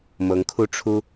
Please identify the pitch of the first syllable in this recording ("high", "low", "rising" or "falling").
rising